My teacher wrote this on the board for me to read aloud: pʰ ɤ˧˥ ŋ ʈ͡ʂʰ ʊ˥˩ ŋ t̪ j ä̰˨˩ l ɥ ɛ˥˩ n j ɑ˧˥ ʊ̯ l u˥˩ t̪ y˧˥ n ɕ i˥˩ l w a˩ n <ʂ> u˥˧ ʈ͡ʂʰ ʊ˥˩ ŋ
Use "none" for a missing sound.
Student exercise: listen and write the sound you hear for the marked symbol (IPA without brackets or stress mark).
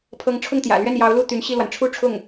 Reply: ʈ͡ʂʰ